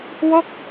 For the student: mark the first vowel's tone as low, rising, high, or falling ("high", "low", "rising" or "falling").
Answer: falling